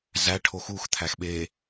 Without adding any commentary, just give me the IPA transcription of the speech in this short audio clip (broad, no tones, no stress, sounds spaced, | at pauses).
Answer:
z æ ʈʰ o x u x t̪ʰ æ x ɓ eː